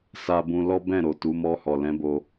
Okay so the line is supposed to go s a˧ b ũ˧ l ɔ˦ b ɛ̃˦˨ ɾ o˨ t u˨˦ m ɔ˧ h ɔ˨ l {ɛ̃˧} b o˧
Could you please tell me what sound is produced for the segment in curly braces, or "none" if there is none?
ɛ̃˨˦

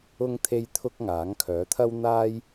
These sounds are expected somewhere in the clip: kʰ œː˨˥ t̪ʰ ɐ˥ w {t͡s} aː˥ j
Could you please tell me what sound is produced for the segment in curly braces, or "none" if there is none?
n̪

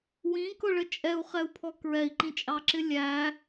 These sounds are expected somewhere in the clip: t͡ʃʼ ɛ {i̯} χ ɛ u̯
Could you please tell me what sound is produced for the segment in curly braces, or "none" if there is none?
u̯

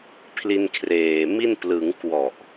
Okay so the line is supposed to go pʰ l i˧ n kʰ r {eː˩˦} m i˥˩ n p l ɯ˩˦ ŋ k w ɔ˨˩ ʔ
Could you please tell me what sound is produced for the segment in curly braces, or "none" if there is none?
eː˨˩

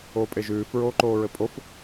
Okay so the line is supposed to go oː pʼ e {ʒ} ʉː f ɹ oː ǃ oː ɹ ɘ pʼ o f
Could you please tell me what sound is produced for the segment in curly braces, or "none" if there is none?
ʒ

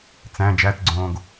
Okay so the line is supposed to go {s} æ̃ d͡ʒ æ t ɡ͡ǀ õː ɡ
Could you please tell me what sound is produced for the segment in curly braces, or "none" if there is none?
t͡s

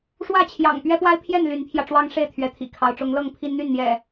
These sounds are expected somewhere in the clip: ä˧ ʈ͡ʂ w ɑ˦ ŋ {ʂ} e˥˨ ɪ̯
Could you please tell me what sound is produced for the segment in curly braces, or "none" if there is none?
ʂ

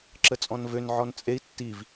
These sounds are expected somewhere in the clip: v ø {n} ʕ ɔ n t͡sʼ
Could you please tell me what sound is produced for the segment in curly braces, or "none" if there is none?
n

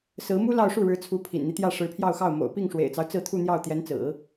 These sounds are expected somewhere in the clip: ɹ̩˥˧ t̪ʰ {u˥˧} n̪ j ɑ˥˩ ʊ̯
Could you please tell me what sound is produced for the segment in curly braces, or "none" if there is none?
u˥˧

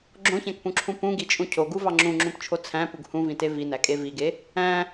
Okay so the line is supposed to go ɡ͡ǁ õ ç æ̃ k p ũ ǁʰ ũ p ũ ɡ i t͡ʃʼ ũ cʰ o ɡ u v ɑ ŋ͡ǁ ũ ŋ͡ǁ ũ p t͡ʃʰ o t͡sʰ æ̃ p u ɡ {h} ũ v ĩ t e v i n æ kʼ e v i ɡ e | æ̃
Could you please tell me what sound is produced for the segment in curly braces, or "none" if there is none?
h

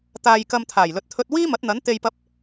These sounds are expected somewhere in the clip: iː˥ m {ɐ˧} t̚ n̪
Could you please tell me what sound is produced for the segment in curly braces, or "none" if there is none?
ɐ˨˥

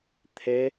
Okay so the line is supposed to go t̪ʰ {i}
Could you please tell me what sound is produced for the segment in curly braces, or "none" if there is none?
e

